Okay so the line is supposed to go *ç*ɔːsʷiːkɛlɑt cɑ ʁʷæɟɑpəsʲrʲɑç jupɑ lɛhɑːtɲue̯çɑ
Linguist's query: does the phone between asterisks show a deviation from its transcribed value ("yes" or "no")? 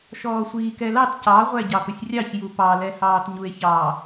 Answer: yes